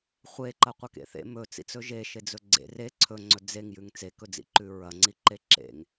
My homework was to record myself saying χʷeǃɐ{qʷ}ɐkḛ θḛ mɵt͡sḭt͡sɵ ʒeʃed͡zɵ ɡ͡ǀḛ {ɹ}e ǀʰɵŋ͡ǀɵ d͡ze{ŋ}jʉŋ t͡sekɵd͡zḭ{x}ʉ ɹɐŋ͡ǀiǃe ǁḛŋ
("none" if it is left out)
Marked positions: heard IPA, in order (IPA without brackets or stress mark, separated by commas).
qʷ, r, ŋ, ǃ